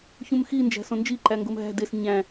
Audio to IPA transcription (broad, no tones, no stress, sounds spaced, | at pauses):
ç ũ m x i n d͡ʒ æ̤ s õ n d͡ʒ i ǃ æ ŋ ɡ o m ɦ æ̤ d e s ɲ æ̃